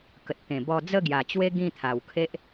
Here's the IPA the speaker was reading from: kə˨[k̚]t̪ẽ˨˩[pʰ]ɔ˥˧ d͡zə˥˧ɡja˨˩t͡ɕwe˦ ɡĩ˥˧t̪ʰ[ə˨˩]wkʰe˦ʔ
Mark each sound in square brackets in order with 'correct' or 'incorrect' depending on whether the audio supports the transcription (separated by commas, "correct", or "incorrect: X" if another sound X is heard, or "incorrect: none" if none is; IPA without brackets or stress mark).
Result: incorrect: t̚, incorrect: b, incorrect: a˨˩